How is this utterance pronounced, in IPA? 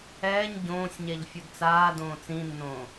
ɛː ɲ ɟ õː sʲ ɲ ɛ ʎ fʲ u d t͡s aː d õː t͡s ĩ nː õː

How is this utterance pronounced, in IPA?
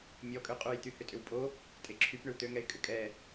mʲ ɔ kʼ ø qʼ u j t̪ y h ʏ tʼ ʏ w pʼ o | tʼ e ǁʰ y p ɳ ʏ w t̪ ø ŋ ɛ ɪ̯ kʼ ʏ kʼ ɛ

